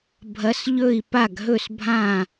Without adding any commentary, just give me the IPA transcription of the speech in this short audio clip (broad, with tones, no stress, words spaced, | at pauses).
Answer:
bʱɐ˨˦sʎɵ˥˩i̯ pa˥˩ɡɦɵ˥˩s bʱã˥˩